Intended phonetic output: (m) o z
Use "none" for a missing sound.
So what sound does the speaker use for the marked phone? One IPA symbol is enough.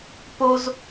p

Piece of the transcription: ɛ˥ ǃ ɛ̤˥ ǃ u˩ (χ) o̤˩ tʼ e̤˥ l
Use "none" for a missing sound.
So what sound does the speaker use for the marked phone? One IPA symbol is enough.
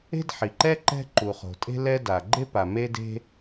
χ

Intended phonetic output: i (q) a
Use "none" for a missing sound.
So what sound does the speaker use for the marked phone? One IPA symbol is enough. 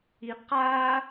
q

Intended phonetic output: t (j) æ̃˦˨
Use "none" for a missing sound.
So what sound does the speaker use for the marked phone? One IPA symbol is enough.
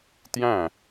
j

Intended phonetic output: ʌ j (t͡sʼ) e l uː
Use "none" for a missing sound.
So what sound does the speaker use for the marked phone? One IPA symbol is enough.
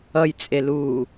t͡sʼ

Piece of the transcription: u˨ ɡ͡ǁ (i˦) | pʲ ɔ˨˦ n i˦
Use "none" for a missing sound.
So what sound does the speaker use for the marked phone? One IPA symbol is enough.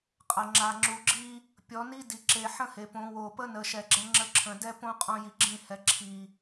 i˦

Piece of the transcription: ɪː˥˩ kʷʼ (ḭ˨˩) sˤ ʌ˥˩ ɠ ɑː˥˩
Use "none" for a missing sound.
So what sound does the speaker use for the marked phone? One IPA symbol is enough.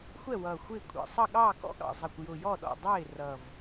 ḭ˨˩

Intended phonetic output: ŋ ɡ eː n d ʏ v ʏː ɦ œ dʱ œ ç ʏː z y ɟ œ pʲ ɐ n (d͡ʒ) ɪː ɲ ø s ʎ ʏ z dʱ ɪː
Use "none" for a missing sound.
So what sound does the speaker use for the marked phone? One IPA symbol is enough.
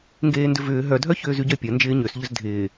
d͡ʒ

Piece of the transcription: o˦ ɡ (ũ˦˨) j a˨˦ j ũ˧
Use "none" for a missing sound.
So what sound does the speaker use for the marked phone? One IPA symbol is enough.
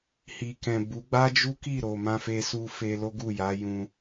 u˦˨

